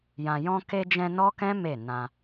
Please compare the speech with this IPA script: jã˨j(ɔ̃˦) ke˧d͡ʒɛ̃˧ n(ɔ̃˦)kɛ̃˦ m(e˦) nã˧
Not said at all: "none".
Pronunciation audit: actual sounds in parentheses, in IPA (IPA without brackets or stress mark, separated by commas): ɔ̃˧, ɔ˦, e˦˨